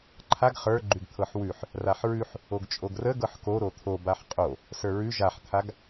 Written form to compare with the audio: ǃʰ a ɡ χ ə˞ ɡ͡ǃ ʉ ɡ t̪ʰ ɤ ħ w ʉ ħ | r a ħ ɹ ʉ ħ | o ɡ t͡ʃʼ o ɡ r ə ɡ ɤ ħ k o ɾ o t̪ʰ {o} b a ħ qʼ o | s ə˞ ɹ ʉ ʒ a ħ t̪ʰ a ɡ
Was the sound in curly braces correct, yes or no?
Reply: yes